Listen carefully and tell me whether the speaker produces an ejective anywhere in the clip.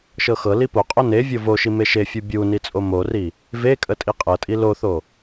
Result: yes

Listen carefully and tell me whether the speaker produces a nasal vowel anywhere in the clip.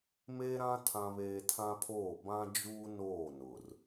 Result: yes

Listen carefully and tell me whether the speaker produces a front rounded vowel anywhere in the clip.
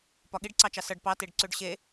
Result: yes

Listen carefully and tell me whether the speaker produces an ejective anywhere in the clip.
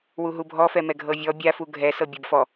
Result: no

